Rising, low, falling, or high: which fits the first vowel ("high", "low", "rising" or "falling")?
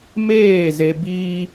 falling